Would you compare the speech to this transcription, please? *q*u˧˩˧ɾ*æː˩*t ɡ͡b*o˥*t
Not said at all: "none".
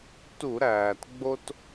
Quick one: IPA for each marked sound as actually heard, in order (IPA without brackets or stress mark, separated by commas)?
t, æː˩, o˥